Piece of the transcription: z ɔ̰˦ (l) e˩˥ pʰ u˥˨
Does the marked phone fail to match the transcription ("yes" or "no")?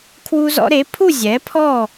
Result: yes